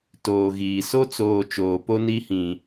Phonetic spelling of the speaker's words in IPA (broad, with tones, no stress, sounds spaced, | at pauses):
t oː˨ ɣ iː˨ s o˦ t͡s oː˨ t͡ʃ oː˨ p o˦ n i˦ h ĩ˨